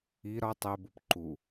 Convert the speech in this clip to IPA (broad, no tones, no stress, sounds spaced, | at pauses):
i ɾ ɒ tˤ e b u p ǃ u